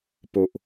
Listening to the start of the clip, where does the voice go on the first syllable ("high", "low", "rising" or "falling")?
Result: low